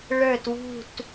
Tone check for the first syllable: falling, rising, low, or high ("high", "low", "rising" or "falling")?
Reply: falling